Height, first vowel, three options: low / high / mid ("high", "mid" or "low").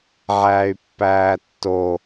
low